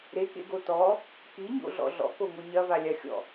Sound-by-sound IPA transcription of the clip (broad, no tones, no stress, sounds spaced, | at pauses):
ɾ e k ḛ ɡ o t ɔ | k i ɲ o̰ ɮ ɔ̰ ɮ ɔ̰ k o ŋ o ɲ ɐ v a lʲ a xʲ ɔ̰